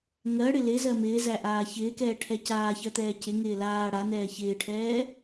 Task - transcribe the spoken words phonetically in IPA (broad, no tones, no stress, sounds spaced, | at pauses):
ŋ ɜ ɽ ɪ l ɪ z ɜ m ɪː z æ ʔ aː ç ɪː k ɛː ʈʰ ɛ c aː ç ɜ t̪ ɛː c ɪ ŋ ɪː l aː ɽ a n ɛː ç ɪː ʈʰ ɛː